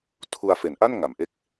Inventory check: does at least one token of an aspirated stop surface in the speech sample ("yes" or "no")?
yes